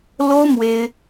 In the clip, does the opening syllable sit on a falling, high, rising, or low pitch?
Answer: high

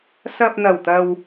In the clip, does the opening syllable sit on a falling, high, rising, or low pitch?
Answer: low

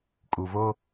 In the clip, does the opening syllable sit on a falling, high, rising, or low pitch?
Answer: low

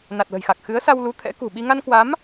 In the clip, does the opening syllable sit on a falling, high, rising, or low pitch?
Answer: low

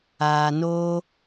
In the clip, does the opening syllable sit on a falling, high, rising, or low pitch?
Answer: low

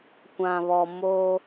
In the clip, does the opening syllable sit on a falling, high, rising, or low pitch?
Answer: low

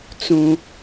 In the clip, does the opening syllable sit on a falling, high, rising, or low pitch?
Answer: high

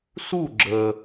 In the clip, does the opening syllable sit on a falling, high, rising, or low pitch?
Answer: falling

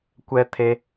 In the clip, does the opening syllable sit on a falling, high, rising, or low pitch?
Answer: low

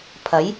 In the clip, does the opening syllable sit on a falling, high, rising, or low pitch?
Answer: rising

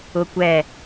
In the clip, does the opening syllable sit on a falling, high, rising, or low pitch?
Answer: high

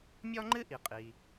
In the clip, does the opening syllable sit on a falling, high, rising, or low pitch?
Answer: high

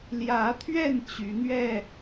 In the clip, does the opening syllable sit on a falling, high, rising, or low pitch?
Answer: rising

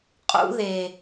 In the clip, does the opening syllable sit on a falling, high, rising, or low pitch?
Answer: high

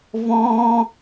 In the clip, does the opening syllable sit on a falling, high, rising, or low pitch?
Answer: high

